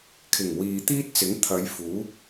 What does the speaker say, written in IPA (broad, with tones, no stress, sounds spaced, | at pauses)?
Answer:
kʰ ɪ˨˩ ŋ w iː˨ t̪ iː˥ t̚ t͡s ɪ˨˥ ŋ t̪ʰ ɐ˨˧ j f uː˨˥